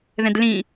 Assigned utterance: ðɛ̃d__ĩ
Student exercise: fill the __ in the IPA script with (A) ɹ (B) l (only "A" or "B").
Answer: B